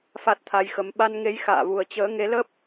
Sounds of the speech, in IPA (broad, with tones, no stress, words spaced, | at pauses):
fa˦˥t̚t̪ʰa˧jxə˨˦m ɓa˧nŋe˨˦j xa̰ː˧˨vu˨˩ə̯ t͡ɕəː˨˦ŋe˨˦lə˦˥p̚